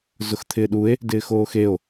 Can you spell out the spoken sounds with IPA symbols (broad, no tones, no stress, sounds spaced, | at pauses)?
z ʊ x t̪ʰ ɪː ɗ u e̯ | d ɪː x oː x e o̯